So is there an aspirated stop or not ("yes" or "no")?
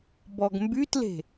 no